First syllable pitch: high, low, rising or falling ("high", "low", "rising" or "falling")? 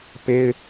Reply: high